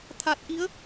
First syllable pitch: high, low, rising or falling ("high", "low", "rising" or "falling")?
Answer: low